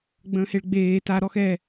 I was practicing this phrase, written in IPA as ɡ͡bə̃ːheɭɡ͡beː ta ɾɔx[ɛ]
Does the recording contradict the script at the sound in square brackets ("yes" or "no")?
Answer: no